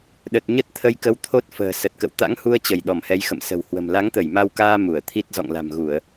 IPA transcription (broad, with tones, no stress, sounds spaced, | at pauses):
ɗ ə˨˩ t̚ ɲ ə˦˥ t̚ t̪ʰ ə˧ j k ə˧ w t̪ʰ o˦˥ t̚ f ə̤ː˨˩ s ə˨˩ t̚ k ə̰˧˨ w t̪ a̰˧˥ ŋ h u˧ ə̯ t͡ɕ ə˧˩ j ɗ ɔ˧˩ m h ɛ˨˦ j x ə̰˧˨ m s ə̤˨˩ w h w ə̤˨˩ m l a˨˦ ŋ t̪ ə˧˩ j m a˧ w k aː˧ m u˧˩ ə̯ t̪ʰ i˦˥ t̚ z ɔ̰˧˨ ŋ l a̤˨˩ m ɣ u˧˩˨ ə̯